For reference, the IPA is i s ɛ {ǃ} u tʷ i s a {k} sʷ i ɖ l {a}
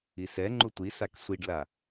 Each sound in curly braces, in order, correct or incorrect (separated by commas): incorrect, correct, correct